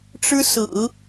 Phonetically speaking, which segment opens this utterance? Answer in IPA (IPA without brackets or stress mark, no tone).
ʈ͡ʂ